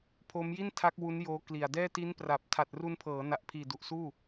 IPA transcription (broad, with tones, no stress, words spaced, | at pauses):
pʰo˦˥mji˥˩ntʰa˦˥k̚ wu˦˥njoː˦˥ kli˨˩a̯dɛː˥˩ ti˦˥npra˨˩p̚ tʰa˨˩t̚ru˧npʰɤː˩˦na˨˩ʔ pʰiː˨˩du˨˩ʔsuː˥˩